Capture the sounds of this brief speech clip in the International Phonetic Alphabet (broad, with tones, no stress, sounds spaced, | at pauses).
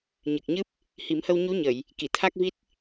ɲ ɨ˨˩ k̚ ɲ ɨ˦˥ p̚ | h i˨˩˦ m h ə˧ w ɲ u˧˥ ɲ ə˨˩˨ j | k i˨˩˨ t̪ʰ a˦˥ k̚ v i˦˥ t̚